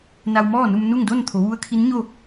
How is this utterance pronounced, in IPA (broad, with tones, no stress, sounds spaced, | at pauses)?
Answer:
n a˧ w m ɔː˥˨ n u˧ m n u˥˨ ŋ d o˥˨ n t̪ʰ o˩˧ ʋ u˧˥ ə̯ kʰ i˧˥ n ɲ o˥˨